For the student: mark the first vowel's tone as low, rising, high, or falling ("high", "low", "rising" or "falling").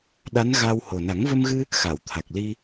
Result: rising